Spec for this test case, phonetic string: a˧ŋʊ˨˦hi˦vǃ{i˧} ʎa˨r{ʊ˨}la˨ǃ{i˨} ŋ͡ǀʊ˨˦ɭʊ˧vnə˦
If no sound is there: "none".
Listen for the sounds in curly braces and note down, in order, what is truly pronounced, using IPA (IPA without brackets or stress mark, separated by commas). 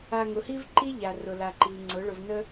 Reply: i˦, ʊ˨, i˨